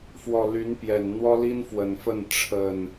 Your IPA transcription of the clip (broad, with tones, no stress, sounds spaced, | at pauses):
f w ɔ˨˩ l y˨˦ n p j ɛ˨˩ n n̪ w ɔ˦ l i˦ n f w ə˨˩ n f ə˥˨ n ʈ͡ʂʰ ə˨˩ n